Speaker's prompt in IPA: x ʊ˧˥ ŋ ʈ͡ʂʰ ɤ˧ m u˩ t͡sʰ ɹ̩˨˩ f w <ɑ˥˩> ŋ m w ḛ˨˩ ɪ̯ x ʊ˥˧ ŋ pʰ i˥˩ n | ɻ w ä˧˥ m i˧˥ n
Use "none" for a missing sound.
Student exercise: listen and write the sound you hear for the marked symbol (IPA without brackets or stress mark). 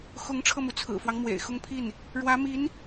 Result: ɑ˦